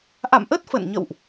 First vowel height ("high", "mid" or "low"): low